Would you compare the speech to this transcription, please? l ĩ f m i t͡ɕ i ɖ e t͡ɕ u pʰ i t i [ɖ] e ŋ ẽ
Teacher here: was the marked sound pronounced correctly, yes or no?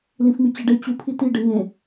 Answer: yes